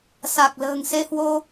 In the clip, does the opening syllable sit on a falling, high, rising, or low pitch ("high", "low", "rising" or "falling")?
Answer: low